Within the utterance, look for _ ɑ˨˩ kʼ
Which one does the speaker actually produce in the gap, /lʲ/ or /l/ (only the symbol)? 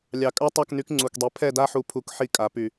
lʲ